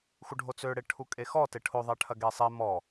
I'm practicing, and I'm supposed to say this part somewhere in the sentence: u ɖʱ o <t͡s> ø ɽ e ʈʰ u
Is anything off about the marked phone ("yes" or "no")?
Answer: no